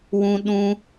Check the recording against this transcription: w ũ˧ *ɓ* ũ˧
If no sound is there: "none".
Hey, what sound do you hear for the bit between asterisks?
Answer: ɗ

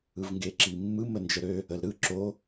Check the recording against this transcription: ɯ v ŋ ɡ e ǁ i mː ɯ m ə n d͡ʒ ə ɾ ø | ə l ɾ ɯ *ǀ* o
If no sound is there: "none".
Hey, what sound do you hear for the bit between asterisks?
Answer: ǁ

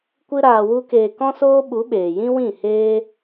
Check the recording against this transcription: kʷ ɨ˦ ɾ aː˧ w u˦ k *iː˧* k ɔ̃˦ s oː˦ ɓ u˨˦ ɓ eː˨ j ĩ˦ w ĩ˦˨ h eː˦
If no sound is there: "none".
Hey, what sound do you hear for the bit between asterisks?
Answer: eː˧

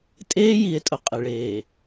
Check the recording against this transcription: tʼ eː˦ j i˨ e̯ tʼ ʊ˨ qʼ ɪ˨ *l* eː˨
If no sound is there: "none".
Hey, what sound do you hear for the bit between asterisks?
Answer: ɭ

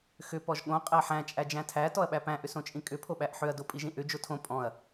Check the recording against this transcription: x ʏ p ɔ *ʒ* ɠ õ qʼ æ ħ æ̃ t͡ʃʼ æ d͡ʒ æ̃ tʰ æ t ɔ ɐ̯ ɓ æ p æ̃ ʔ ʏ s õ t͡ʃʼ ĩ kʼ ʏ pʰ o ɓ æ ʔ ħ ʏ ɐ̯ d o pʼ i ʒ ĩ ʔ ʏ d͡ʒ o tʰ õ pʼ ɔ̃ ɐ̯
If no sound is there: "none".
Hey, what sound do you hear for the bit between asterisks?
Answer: ʒ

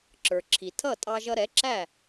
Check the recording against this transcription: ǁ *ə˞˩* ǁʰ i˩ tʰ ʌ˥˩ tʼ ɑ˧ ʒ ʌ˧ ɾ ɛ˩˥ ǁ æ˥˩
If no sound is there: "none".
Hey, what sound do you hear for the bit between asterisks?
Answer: ə˞˩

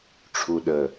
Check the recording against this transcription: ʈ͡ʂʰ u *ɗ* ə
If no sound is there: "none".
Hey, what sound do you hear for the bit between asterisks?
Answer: ɗ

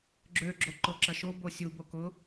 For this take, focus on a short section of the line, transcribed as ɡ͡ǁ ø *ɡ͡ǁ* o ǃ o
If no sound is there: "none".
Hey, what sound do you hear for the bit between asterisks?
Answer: ɡ͡ǁ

